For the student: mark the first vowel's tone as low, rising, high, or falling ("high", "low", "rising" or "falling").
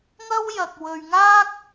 high